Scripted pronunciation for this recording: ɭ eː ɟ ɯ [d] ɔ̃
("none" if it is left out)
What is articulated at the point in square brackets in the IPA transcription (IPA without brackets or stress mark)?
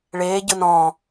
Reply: n